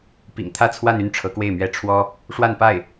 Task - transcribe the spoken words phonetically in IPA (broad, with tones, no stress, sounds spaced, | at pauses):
p ḭ˨˩ ŋ t̪ʰ ä˥˧ t͡sʰ w a˥˧ n y˥˩ n ʈ͡ʂʰ ɤ˧˥ k w e˥˩ ɪ̯ m ɥ ɛ˥ ʈ͡ʂʰ w ɔ˥ | ʂ w a˥˧ n p a˥˩ ɪ̯